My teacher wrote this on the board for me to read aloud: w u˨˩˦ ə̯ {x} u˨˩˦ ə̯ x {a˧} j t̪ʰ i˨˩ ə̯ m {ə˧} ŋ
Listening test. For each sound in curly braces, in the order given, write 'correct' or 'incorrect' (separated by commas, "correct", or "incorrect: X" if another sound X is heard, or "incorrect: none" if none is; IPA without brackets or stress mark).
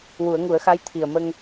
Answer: incorrect: ŋ, incorrect: a˧˥, correct